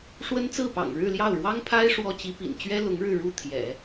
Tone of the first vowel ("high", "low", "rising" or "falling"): high